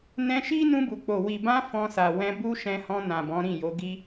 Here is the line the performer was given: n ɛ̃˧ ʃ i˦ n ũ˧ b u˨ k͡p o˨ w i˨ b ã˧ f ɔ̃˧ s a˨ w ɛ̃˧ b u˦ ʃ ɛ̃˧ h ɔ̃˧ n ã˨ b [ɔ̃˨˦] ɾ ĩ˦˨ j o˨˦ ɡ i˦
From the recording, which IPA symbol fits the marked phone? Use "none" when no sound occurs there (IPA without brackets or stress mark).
ɔ̃˨˦